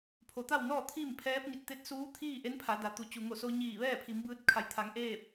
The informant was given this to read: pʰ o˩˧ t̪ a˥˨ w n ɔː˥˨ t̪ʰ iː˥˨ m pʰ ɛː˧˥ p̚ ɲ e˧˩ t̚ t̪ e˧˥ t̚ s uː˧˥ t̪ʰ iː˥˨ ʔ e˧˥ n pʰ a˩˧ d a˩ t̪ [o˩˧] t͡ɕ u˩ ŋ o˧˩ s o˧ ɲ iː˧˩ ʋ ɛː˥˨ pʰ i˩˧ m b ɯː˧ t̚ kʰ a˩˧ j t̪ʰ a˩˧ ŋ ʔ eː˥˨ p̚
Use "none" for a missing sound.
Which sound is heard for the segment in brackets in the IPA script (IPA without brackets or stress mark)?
u˩˧